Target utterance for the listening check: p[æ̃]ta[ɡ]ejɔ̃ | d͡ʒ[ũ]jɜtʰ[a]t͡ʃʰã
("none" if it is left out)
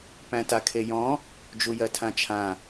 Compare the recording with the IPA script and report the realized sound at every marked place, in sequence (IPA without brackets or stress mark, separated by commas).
æ̃, kʰ, u, ã